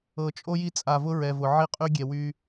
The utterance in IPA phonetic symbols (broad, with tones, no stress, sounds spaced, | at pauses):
ɤ˨ t͡ʃʼ o˦ j i˦ t͡sʼ a˨ v ʊ˦ ɹ ɛ˨ v ʊ˨ ʕ i˦ qʼ y˦ ɡʲ ɛ˨ w y˦